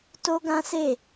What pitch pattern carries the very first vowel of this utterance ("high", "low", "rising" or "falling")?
high